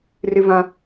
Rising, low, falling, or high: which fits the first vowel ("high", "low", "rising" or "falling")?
high